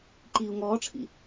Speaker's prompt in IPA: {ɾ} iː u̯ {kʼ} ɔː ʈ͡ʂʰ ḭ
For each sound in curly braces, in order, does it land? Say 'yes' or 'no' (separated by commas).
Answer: no, no